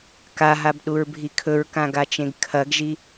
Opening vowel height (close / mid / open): open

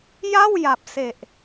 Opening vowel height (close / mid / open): open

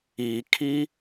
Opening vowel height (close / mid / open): close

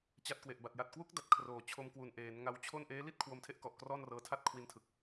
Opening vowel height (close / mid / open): open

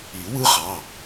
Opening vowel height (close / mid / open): close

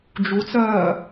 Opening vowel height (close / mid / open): close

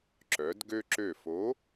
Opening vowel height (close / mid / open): mid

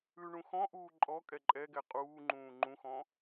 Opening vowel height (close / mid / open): close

